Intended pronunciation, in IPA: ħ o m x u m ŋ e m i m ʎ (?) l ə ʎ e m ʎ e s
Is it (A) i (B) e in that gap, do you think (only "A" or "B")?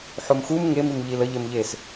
A